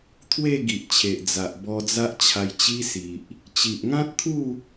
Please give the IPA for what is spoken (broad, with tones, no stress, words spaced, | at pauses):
t̪ʰwe˥˧ ɡi˨ʔt͡ɕʰe˨ʔ d͡za˨ʔbɔ˧d͡za˦ʔ t͡ɕʰa˧jt͡ɕi˦si˨ʔ | t͡ɕi˨ʔŋã˦t̚t̪ʰu˥˧